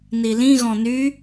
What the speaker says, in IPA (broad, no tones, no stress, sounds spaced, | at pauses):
n i l ĩ ɣ ɔ̃ n y